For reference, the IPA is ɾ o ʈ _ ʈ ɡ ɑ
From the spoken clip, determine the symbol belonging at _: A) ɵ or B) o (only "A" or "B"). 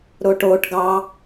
B